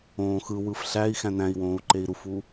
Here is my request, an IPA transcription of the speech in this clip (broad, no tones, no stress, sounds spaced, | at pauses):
õː x ɯ w ɯ f ɬ æ i̯ x æ̃ n æ̃ i̯ w õː u̯ ǃ e i̯ ɾ u f u